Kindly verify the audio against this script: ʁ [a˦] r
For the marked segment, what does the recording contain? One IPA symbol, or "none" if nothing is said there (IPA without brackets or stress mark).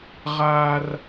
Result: a˦